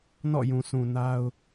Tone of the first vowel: falling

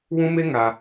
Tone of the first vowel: high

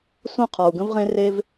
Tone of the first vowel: falling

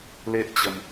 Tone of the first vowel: high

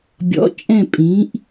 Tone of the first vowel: rising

